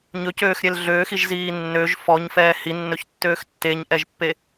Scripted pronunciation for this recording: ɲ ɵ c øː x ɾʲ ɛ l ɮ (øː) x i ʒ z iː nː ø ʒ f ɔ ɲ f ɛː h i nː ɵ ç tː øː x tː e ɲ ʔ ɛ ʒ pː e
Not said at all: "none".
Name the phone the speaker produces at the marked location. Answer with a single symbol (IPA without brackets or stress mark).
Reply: øː